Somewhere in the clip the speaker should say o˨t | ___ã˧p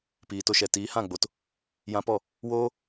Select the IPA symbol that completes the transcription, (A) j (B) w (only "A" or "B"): A